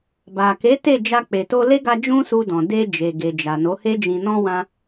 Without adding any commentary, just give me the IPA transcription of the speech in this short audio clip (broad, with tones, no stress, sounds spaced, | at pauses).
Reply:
b a˨ k e˨˦ t e˦˨ d͡ʒ a˧ k͡p e˨ t o˧ l e˦ ɡ a˧ d͡ʒ ũ˦ s u˧ d ɔ̃˨ d e˧ d͡ʒ e˨ ɡ e˨ d͡ʒ a˨ n o˨˦ h e˦ d͡ʒ ĩ˧ n ɔ̃˧ w ã˧